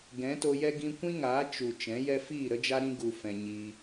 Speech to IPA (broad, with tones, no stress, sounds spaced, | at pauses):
ɡ ɛ̃˨˦ t o˧ j ɛ˦ ɡ ĩ˧ kʷ ĩ˦ ŋ aː˨˦ t͡ʃ u˨ t͡ʃ ɛ̃˨˦ j ɛ˦ f iː˦˨ ɾ ə˦ d͡ʒ a˦ ɾ ĩ˦ ɡ u˦ f ɛ̃˧ ɲ iː˦